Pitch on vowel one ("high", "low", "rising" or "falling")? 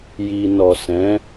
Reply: low